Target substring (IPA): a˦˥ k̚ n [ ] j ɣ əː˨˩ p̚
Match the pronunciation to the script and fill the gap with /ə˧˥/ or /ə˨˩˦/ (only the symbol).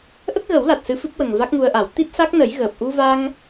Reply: ə˨˩˦